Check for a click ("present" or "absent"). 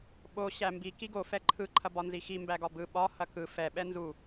present